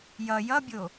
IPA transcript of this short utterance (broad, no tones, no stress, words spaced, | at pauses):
jʌ jʌbʲo